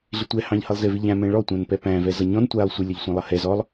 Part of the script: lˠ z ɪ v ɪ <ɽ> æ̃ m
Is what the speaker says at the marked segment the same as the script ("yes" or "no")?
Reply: no